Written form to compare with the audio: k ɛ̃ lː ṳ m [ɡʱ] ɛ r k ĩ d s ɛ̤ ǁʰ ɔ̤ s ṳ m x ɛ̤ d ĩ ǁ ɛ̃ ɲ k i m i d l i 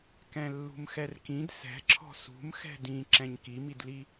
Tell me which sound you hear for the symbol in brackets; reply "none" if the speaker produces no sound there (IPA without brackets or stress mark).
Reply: x